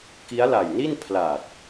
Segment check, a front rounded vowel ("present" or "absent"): absent